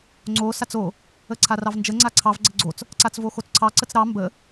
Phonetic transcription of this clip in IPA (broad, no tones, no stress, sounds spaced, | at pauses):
ŋ͡ǀ o s a t͡s o | ə ǀʰ a r ɑ v n d͡ʒ ə ŋ͡ǀ a ǀʰ ɑ v ɡ͡ǀ ə ɡ͡ǀ o t͡s | ǀ a t͡s v o x o t͡s ǀʰ ɑ ǀ ə t͡s ɾ ɑ m b ə